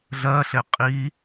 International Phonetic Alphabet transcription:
ɮ ɜ ɬ e qʼ i

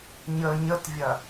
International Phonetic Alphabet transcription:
ɲ ə ɲ ə t vʲ ɐ

